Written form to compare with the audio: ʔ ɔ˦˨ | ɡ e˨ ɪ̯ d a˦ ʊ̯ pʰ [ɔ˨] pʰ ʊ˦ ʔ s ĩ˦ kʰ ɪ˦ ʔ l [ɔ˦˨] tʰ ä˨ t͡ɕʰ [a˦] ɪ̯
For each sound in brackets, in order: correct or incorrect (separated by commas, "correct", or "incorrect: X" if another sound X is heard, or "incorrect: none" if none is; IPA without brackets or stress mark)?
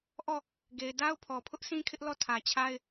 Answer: correct, correct, correct